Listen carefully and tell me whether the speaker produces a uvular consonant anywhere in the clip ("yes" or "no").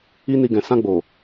no